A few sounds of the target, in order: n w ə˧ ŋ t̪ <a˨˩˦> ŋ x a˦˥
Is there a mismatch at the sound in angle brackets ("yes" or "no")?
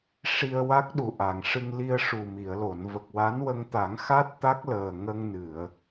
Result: no